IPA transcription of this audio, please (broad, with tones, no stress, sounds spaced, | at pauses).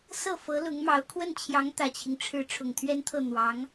s ɤ˥˩ f ɤ˧˥ l ʊ˧˥ ŋ m ɑ˧˥ ʊ̯ kʰ w ə˥˩ n t͡ɕʰ j ɑ˧˥ ŋ t̪ ä˨˩ t͡ɕʰ i˦ ŋ ʈ͡ʂʰ ɻ̩˥ ʈ͡ʂʰ ʊ˨˩ ŋ t̪ʰ ɥ ɛ˥ n t̪ʰ ɤ˥˩ n̪ w ɑ˧˥ ŋ